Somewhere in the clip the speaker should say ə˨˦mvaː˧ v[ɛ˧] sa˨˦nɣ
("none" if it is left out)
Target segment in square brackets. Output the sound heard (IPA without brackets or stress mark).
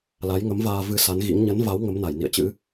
ɨ˧